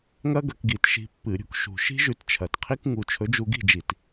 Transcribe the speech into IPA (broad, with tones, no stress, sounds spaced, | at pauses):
ŋ ɐ˥ ɡ ɐ˧˩˧ k ɡ i˧˩˧ t ʃ i̤˧ pː ɨ˧˩˧ ɾʲ ṳ˧ k ʃ ṳ˨˩ ʃ i̤˥ ʒ ʉ˧ t t͡ʃʰ ɐ˨˩ t qʰ i˥ k ŋ u˧ t͡ʃʰ ɵ˨˥ d͡ʒ u˧ ɡ i̤˥˨ d͡ʒ i˧˩˧ t